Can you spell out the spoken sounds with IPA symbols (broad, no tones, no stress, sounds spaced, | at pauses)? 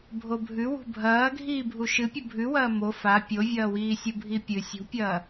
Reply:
bʱ o bʱ ʉ w ṳ bʱ ɐː ɡʱ iː bʱ u ʃ ɨ pʲ u bʱ ʉ w ɐː m o f a pʲ o vʲ ɐː w iː sʲ u bʱ i pʲ ɨ sʲ ṳ pʲ ɐː